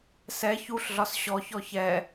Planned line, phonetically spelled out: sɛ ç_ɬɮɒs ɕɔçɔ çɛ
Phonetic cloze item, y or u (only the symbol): u